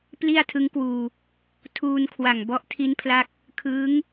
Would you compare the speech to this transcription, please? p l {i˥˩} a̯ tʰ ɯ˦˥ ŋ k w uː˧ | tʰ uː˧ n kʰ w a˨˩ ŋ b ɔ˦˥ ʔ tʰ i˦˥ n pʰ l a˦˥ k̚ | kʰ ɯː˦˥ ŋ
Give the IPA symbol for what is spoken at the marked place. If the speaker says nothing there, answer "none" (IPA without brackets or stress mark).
i˥˩